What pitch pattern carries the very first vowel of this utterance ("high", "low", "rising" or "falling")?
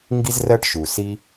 high